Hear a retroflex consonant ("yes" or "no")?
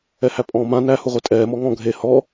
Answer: no